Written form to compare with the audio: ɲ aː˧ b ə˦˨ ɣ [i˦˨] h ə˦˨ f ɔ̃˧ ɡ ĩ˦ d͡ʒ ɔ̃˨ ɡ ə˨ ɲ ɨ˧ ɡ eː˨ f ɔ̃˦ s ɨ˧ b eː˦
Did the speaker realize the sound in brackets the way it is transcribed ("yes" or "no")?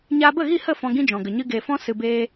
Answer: yes